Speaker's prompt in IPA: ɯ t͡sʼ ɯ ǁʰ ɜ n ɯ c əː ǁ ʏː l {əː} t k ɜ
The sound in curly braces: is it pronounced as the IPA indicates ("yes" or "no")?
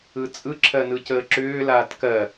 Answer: no